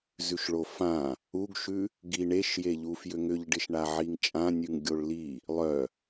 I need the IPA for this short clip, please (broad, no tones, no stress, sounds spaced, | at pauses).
z ʉ ʃ ɭ o f ã | u ɡ ʃ ʉ | ɡ i ɳ e ʃ j e ʎ u f j ʏ ŋ ʏ ʎ ɖ ɪ ʃ ɳ a ʕ i ŋ t͡ʃʼ ã nʲ ʉ ŋ ɡʲ o ɭ l i | lˠ œ